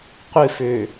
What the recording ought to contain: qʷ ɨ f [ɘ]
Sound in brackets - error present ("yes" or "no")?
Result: yes